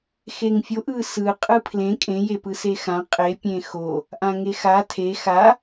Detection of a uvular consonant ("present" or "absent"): present